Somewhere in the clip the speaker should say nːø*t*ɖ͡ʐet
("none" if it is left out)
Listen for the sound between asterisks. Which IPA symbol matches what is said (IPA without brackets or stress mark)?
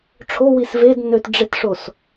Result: t